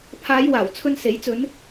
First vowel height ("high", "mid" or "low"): low